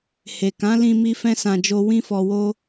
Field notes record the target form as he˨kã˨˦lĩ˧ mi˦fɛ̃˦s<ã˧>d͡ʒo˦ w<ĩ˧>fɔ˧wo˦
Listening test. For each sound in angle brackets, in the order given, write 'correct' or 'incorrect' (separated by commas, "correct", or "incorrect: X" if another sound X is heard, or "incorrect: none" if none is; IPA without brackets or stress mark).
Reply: correct, incorrect: ĩ˦